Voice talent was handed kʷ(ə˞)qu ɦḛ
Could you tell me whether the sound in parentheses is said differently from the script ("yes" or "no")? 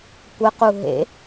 yes